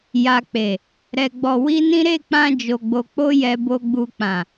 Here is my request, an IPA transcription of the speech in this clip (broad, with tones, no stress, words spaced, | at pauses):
ja˨k͡pe˨ | ɾɛ˨ ɡ͡bɔ˧wi˦nĩ˦ ɾe˦˨k͡pã˧ d͡ʒo˨ɡ͡bo˨k͡po˧ jɛ˨bo˨ɡ͡bu˨k͡pã˨